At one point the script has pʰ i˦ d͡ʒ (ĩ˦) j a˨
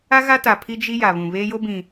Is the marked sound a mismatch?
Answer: yes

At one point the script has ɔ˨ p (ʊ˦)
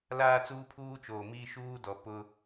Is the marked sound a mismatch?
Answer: no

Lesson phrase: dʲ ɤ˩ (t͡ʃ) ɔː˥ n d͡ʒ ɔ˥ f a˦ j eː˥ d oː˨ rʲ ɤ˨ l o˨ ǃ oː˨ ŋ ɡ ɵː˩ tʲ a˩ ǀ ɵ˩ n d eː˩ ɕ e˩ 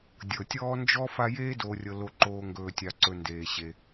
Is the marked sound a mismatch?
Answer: yes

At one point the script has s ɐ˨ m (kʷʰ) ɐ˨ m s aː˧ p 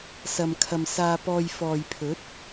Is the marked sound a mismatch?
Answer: yes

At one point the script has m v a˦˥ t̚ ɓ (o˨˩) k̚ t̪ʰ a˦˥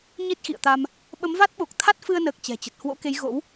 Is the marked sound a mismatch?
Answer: no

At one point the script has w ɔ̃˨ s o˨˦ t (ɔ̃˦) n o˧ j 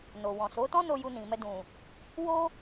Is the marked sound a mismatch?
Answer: no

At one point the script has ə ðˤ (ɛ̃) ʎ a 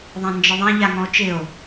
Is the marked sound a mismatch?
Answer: no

